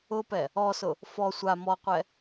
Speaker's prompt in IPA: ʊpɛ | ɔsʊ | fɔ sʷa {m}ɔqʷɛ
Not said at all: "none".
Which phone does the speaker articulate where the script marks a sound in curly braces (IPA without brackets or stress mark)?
m